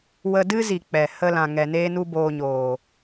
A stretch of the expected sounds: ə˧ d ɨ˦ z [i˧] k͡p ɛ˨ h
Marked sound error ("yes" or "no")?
yes